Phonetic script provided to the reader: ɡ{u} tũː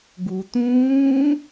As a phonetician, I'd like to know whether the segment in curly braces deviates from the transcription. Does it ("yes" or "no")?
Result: no